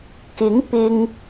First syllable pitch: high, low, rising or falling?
rising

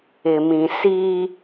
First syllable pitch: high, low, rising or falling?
low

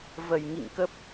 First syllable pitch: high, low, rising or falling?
low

